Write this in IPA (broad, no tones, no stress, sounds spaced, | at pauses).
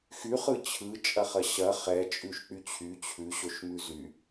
x y χ ɯ t͡ɕʰ ɯ t͡ʃʼ ɐ χ ɐ ɕ ɐ χ ɛ t͡ʃʼ ʉ ʃ k͡p y t͡ɕʰ y t͡ɕʰ ʉ ɕ o ʃ m ʉ z y